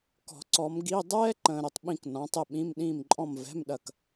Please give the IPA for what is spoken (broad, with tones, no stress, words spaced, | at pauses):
kɔ̤˨˩˦ ǀɔ˨˦mɡi˧˥˧ dˤɛː˥ ǃə̃ː˨ɾʊ˨tˤɓĩ˦˨k nɔ̃˨˦tˤɪ˦˨ɓĩ˧˥˧m ɗĩː˦˨mǃʼɔ̃˦˨m vɛ̤˧˥˧mɗɐ˦˨k